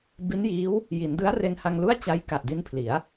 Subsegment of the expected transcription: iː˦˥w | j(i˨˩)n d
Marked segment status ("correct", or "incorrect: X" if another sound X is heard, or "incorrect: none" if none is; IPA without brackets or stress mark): incorrect: i˩˦